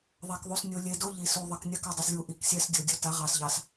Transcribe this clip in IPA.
ðˤ a˨ k ðˤ u˨ s nʲ o˨ lʲ e˨ d o˦ ʎ i˨ s u˨ ðˤ ɘ˨ k nʲ a˦ k ɵ˦˨ dˤ ɘ˨ s lʲ u˨ ʔ i˨ k sʲ ɛ˦ s dʲ o˨ dʲ o˦ t a˨˦ ʁ ɑ˨ s ʎ ɑ˨ s

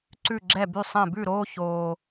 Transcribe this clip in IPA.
ǀ ʉ˧˩ ɡ͡ǁ ɛ˧˩ b y˧˩ sˤ ɛ̃˧˩ b ʉ˧˩ ɾ oː˧ ç oː˧

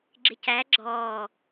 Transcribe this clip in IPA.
ɡ͡ǁ ɪ c æ ɡ͡ǁ ɔː

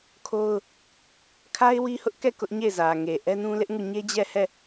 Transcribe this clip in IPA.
kʰ o˦ ʊ̯ | kʰ a˦ ɪ̯ w i˦ h ʊ˦ ʔ k ɛ˦˨ k ʊ˦ ʔ ɲ e˦˨ ɪ̯ z ä˨ ŋ e˨ ʔ ɛ˦ n ũ˦ l ɪ˦ ʔ ŋ u˦˨ ɲ e˦ d͡ʑ ɛ˦˨ h ɛ˦˨

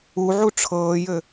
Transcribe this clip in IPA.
u ʕ u ʈ͡ʂʰ ɤː j ɘ

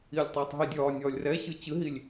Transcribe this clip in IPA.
i lʲ tˤ ɨː tˤ ɦ i dʲ ɒː nʲ ɒː lʲ r ɛ ɕ ɨ t͡ɕ ɨ ɦ i lʲ

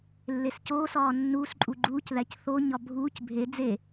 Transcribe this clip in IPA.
lː e s c oː s ɒː nː uː s ǃʼ u ɡ͡ǃ uː c ð æ c θ o ɲ ɒ bʱ uː c bʱ e d͡z e

